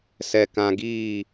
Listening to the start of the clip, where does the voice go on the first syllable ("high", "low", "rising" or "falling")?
high